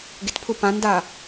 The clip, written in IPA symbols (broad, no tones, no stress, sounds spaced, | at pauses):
ɡ ɪ t pʰ ʊ p ã n d a